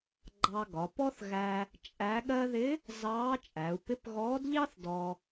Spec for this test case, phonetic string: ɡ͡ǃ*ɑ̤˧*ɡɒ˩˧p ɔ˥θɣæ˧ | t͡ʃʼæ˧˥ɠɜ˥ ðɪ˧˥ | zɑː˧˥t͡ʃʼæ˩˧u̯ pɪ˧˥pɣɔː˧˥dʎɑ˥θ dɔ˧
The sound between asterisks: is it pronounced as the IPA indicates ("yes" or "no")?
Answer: no